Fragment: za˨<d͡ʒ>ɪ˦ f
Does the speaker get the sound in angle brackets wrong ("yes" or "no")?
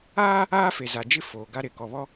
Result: no